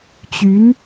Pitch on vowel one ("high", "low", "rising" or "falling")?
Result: rising